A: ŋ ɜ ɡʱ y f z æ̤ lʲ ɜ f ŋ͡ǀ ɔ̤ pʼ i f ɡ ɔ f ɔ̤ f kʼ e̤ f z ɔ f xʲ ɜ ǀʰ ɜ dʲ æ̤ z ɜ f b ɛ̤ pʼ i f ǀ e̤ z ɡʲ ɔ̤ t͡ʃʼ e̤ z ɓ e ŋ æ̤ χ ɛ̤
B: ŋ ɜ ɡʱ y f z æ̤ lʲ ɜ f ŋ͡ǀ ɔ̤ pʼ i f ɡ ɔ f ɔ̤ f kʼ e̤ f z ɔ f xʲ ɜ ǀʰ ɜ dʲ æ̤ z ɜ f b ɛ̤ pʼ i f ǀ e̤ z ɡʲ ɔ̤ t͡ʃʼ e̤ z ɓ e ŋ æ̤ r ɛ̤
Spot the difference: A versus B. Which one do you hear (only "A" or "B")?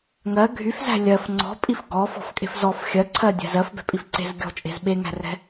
B